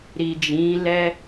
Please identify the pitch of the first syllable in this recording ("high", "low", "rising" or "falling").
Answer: low